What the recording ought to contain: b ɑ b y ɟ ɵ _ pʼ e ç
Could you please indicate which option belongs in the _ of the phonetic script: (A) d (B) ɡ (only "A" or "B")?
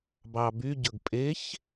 B